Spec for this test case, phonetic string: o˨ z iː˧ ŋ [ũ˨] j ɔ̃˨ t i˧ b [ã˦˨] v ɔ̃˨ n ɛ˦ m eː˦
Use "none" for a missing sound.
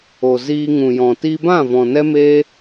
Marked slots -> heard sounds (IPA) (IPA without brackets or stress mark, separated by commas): ũ˨, ã˦˨